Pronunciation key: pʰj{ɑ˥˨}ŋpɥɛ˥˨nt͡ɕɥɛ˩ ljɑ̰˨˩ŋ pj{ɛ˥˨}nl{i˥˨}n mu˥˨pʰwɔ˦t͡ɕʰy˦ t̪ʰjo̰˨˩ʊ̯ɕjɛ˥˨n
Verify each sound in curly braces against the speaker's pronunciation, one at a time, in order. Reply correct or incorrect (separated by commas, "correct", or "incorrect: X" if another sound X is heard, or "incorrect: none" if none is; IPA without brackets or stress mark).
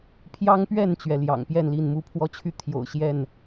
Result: incorrect: ɑ˦, correct, correct